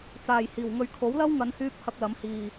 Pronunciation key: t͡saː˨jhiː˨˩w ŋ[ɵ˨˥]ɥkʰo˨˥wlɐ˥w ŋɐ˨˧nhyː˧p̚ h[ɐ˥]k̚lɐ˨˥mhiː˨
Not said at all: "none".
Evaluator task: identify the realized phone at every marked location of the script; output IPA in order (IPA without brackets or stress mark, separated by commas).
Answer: ɵ˨, ɐ˧